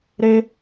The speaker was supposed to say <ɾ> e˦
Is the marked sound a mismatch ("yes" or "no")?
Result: no